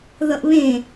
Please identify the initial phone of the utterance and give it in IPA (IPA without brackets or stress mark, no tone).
ð